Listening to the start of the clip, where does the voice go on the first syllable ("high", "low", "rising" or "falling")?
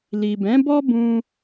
low